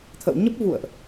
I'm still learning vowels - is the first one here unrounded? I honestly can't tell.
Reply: yes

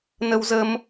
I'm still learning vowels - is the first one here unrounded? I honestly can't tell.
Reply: yes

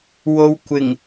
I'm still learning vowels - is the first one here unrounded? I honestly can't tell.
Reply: no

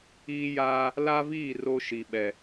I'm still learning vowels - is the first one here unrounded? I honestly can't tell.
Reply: yes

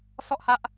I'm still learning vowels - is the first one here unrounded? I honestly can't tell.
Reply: no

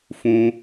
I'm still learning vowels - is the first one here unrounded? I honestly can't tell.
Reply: no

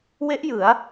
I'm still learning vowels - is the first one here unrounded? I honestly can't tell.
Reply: yes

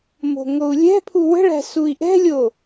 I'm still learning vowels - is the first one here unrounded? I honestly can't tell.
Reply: no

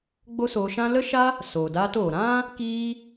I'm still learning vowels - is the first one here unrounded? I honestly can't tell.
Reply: no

